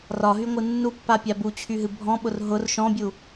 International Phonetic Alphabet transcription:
r ɒ ɦ y ŋʷ ɨ nː u pː a pʲ a b u t͡ɕʰ y ɦ ɨ bʱ ɔ̃ ɓ ʊ r ɦ ʊ r ʃ ɔ̃ bʲ u

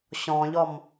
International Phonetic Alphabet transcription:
ɕ ɔ̃ ʎ ɔ m

